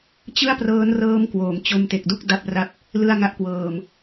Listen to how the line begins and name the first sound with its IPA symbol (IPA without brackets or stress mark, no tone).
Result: t͡ɕ